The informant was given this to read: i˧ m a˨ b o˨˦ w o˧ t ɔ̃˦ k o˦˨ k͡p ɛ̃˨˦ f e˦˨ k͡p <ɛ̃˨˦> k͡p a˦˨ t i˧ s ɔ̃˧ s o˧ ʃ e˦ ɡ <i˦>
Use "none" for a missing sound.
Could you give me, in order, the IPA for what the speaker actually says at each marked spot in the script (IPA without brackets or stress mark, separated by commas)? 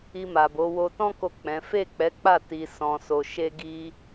ɛ˨˦, i˦